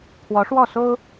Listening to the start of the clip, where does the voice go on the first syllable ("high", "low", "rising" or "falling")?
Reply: rising